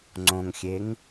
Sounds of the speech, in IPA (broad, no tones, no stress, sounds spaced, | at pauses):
ŋ͡ǀ õ ŋ xʲ e ŋ